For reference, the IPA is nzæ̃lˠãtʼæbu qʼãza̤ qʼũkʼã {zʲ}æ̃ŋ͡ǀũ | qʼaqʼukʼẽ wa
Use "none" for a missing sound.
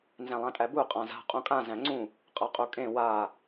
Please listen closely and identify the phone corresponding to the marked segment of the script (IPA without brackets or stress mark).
z